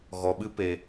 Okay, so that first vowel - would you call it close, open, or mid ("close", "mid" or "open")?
mid